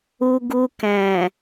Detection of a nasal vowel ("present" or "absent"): present